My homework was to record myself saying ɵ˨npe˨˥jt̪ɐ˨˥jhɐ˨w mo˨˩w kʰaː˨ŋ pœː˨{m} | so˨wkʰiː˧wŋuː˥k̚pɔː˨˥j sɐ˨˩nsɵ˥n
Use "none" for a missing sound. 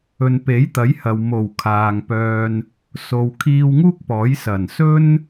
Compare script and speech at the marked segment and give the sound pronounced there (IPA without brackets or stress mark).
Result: n